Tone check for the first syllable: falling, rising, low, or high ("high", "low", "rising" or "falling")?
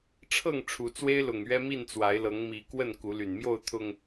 falling